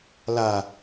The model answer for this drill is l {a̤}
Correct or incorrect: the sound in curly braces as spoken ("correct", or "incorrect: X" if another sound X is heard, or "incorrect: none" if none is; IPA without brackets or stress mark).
incorrect: a